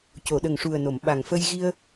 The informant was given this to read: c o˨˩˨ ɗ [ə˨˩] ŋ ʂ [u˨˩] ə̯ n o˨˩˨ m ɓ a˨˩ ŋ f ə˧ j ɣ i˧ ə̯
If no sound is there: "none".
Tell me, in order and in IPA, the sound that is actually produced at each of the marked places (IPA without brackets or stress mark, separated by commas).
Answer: ə˨˩, u˨˩